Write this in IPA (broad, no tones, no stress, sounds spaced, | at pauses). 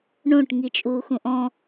ɳ õ ʈ ŋ i t͡ʃʼ uː x ũ ʔ ɔ̃